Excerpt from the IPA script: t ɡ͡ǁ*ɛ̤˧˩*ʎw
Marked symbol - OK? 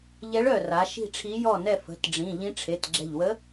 yes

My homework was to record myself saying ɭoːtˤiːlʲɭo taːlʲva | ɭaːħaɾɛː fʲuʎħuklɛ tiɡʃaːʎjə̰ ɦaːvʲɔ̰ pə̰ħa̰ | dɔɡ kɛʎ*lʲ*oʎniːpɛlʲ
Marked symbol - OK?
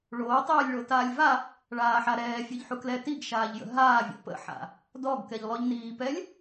no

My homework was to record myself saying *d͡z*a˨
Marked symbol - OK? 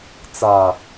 no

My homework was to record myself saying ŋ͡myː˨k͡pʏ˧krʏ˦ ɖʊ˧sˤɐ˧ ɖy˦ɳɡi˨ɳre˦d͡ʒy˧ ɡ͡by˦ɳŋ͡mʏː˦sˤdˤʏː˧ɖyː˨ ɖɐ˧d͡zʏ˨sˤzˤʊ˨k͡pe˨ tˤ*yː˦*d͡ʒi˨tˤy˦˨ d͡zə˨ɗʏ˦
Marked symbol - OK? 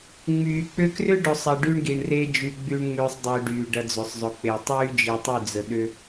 yes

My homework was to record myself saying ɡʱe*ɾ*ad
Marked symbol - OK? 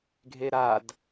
yes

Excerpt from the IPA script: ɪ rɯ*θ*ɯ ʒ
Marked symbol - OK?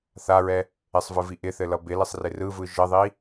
no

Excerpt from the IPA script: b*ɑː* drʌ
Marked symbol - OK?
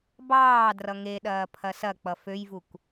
yes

